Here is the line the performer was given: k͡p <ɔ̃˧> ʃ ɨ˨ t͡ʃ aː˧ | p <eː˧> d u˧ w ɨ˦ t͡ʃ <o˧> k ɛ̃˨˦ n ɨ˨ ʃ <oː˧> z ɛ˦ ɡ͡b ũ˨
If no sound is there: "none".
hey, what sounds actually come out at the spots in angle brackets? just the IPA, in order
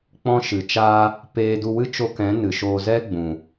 ɔ̃˧, eː˧, o˧, oː˧

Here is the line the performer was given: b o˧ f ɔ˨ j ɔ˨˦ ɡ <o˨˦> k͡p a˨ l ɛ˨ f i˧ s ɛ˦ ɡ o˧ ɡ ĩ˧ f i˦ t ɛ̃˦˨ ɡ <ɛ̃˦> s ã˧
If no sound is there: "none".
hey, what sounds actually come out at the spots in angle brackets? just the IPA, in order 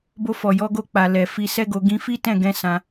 o˧, ɛ̃˧

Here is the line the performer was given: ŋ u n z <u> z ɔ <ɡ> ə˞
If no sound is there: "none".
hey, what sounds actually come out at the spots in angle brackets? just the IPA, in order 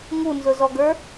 ʊ, ɡ

